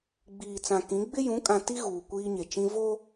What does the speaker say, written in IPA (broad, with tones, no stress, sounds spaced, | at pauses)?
ɡ͡b iː˨ t͡s ã˨ k ĩ˨˦ ɡ͡b ɪ˦ j ũ˨˦ kʼ ã˨ t i˦ ɣ uː˨ kʷ iː˦ ɲ e˨ t͡ʃ ĩ˦ v o˦